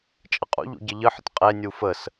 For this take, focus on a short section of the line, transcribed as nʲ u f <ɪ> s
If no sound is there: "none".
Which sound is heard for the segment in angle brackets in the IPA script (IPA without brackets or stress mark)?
ə